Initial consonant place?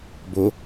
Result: labial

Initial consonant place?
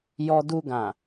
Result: palatal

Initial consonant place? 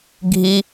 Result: velar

